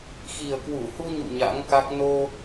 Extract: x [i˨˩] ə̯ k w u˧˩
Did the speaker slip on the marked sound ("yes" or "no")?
no